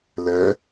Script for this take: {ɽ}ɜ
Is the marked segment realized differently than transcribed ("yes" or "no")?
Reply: yes